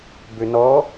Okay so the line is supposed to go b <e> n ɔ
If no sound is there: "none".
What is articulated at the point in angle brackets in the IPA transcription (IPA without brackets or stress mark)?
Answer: ø